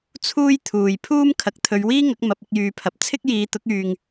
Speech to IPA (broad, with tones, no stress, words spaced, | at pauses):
t͡sʰuː˥jt̪ʰuː˨j pʰuː˥m kʰɐ˨k̚t̪ʰɵ˨˧ɥwiː˥ŋɐ˨˥k̚ mɐ˨˥p̚ɪ˧k̚jyː˨pʰɐ˨p̚ t͡sʰɪ˥k̚jiː˨˧t̪ʊ˨˥k̚yː˨ŋ